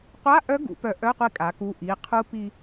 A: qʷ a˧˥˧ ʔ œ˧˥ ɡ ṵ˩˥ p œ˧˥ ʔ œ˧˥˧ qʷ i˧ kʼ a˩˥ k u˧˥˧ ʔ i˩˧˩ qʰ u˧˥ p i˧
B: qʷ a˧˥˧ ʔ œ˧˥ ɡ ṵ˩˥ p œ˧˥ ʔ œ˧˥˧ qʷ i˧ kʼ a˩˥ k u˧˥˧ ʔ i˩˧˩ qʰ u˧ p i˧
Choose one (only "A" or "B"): A